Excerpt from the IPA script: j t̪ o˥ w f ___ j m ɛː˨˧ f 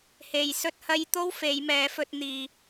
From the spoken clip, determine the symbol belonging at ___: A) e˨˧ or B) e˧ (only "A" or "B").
A